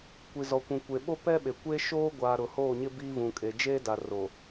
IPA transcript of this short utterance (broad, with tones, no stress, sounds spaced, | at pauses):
kʷ i˨ z ɔ˨ kʷ ũ˨ kʷ e˨ ɓ o˦ p ɛ˦ ɓ e˨ kʷ e˦ ʃ oː˦ ɡʷ aː˨ ɾ ʊ˨ h oː˦˨ ɲ ɪ˦ b iː˦ v ũ˨ kʼ e˨ d͡ʒ eː˦ d a˨ r o˨